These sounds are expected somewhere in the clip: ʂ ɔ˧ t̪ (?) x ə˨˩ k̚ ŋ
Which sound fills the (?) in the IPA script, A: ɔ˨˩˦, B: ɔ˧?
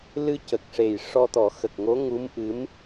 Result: A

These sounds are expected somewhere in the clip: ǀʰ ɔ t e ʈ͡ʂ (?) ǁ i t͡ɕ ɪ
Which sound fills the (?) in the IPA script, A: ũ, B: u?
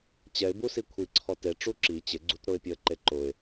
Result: B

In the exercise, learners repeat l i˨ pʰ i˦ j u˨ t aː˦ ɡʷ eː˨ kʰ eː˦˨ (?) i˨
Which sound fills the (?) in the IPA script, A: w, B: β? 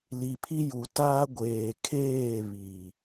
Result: B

